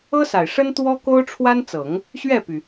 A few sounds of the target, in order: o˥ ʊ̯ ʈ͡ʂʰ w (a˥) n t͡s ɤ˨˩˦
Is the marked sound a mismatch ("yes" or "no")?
no